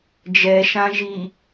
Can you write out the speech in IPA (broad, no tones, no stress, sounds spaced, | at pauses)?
d͡ʒ ɛ ʃ ã ʒ i